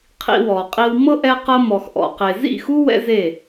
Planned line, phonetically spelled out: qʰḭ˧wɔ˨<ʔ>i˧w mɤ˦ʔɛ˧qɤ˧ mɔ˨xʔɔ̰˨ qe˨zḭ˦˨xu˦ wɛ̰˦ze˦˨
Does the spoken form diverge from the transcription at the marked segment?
yes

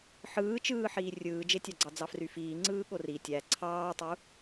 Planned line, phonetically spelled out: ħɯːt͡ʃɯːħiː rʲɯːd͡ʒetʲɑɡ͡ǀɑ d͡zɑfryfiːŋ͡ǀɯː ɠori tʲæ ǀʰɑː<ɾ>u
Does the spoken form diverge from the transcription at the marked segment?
yes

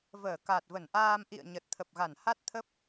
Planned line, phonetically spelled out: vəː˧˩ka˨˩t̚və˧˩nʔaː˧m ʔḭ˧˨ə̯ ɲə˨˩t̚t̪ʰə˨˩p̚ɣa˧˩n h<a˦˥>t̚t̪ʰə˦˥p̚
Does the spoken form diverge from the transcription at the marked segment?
no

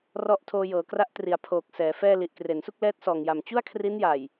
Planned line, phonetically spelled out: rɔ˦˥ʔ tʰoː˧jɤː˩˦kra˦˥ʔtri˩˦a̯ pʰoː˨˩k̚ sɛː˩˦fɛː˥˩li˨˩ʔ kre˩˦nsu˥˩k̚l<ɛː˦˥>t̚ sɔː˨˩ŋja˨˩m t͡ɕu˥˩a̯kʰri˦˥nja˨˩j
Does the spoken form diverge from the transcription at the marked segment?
no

